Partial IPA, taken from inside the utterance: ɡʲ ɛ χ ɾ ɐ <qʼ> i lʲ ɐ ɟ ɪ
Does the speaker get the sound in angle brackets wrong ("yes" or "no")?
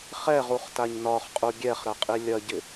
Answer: no